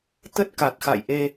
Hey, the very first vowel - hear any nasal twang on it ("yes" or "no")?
no